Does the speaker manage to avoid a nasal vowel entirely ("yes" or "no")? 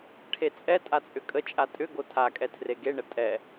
yes